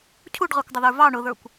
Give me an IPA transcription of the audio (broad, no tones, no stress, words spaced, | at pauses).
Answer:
cʰuɖʁɑkʷdˤʊðə˞ vɑ ɳʊðə˞kʷ